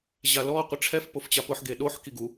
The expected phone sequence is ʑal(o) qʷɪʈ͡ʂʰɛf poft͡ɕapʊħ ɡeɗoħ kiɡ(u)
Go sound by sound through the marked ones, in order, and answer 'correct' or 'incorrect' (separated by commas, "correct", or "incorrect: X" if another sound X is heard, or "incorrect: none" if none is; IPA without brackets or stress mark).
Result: incorrect: ɔ, correct